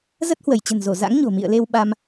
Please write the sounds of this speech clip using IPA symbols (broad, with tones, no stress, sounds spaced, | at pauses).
z ə˦˥ t̚ h w ə˧˩ j t͡ɕ ə̤˨˩ n z o˧˩ z a̰˧˥ ŋ ɲ o̤˨˩ m ḭ˧˨ ə̯ l e˧ w ɓ a˧ m